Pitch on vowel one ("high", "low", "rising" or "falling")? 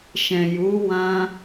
low